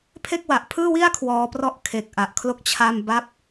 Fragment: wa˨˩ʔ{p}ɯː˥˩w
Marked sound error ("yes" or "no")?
yes